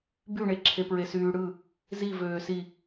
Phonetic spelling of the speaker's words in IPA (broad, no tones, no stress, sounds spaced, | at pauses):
b y ɳ e ǁʰ e p ɹ e s yː ɽ ɯ | z i v øː s i